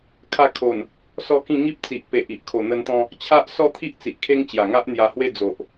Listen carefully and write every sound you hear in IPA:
kʰ a˧ kʰ o˨˩ n | s ɔ˥˧ k ĩ˥˧ ŋ i˦ p̚ t͡s i˨ ʔ p e˨ ʔ i˨ ʔ kʰ o˨˩ n̪ ə˧ n t̪ ɔ̃˧ | t͡ɕʰ a˦ ʔ s ɔ˥˧ t̪ʰ i˦ ʔ t͡s i˨ ʔ kʰ e˦ ŋ t͡ɕ j a˨˩ ŋ a˦ ʔ n̪ j a˧ h w e˥˧ d͡z o˨ ʔ

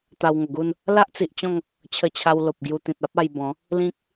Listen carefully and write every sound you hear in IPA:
t̪ a˧ w ŋ ə˨˩ ɡ u˥˧ n | l a˦ ʔ t͡s i˨ ʔ t͡ɕ ɔ̃˥˧ ŋ | t͡ɕʰ ə˧ t͡ɕʰ a˧ w l o˨ p̚ ɡ j u˧ t̪ ĩ˨ t̚ a˦ p̚ a˧ j b ɔ̃˨˦ | l ĩ˦ k̚

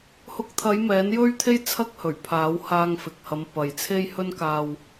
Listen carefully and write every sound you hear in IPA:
h ʊ˨˥ k̚ t̪ʰ ɐ˨˧ j m ɛː˨˥ n j ɵ˥ ɥ t̪ʰ e˥ j t͡sʰ ɐ˥ k̚ h ɵ˨˩ ɥ pʰ aː˨˥ w h aː˧ ŋ f ɪ˨ k̚ h ɐ˨˧ m p ɐ˨ j t͡sʰ e˥ j h ɵ˥ n k aː˧ w

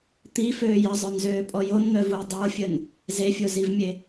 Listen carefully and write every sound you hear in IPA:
t̪ i f øː j ə zˤ œ n z øː pʼ ɔ j o n n̪ œ v u j dˤ o fʲ ə n | z e fʲ o z i v mʲ e

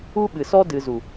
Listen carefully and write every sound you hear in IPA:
u˦ ɓ ɨ˨ s ɔ˦ d ɨ˨ z u˨

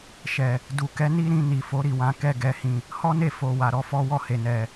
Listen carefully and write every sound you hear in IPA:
ʃ ɛ˨ | d u˨ k ɛ˨˦ n i˦ ɾ ĩ˧ n i˨ f o˨˦ ɾ i˦˨ w ã˧ k ɛ˦ ɡ ɛ˧ h ĩ˧ | h ɔ˦ n e˦˨ f o˨ w a˨ ɾ ɔ˨˦ f ɔ˦ w ɔ˦˨ h e˨ n ɛ˨

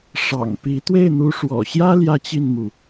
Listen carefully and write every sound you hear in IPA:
ʂ ɑ̰˨˩ ŋ p i˧˥ t̪ w e˥˩ ɪ̯ n̪ u˧˥ ʂ w ɔ̰˨˩ ɕ j ä˥ l j ä˥ t͡ɕ i˥˩ n m u˩

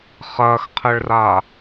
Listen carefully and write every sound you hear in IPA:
χ ɐː x qʰ ɘ ɭ r a

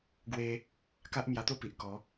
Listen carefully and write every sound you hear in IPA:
ɡ w e˧ | k a˦ ʔ m j a˧ t̪ o˥˧ p i˨ ʔ k ɔ˨˦

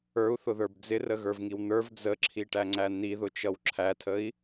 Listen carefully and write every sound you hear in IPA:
ə˞ u̯ θ ʊ ð ə˞ b d͡z ɪ r ə ɣ ə˞ v ŋ i w n̪ ə˞ v d͡z ə ǁʰ i ʈ æ ŋ͡ǀ æ n̪ i ð ʊ t͡ʃ ʌ w ǁʰ æ tʰ ə i̯

